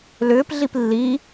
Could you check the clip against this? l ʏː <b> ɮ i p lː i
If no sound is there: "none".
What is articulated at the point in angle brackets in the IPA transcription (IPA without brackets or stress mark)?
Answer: p